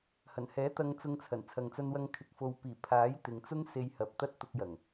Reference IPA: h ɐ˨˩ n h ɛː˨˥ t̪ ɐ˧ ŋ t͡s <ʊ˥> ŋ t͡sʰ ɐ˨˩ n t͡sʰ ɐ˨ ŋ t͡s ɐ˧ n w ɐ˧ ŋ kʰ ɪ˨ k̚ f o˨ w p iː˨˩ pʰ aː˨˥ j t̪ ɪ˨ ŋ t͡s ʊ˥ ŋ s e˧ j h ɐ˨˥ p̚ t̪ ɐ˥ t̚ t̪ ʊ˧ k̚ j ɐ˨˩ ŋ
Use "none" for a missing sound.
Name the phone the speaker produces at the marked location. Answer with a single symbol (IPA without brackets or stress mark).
ʊ˧